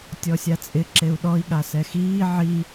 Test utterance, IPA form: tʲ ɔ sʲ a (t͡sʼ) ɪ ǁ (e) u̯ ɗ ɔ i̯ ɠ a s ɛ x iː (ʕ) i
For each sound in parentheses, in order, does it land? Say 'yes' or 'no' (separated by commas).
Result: yes, yes, yes